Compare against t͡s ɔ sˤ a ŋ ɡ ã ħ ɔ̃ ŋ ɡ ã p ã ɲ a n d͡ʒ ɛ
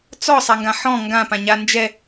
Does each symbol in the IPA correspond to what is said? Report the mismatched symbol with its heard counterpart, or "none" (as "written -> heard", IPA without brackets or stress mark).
none